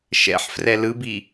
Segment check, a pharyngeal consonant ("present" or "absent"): present